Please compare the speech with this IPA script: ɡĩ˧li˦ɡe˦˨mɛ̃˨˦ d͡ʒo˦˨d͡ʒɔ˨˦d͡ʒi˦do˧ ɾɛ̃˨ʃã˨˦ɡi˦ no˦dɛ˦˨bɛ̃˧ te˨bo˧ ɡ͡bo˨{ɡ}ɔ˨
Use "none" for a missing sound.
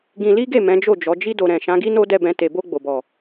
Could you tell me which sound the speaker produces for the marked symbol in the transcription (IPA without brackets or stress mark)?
b